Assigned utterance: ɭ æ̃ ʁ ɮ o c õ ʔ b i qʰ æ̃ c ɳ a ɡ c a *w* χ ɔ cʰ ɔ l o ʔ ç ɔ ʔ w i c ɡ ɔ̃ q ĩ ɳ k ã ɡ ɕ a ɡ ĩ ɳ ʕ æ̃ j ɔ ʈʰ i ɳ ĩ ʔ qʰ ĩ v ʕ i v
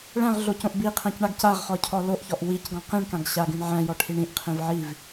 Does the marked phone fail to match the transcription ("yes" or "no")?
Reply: yes